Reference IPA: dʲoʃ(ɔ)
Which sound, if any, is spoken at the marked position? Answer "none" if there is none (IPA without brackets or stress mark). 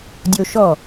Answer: ɔ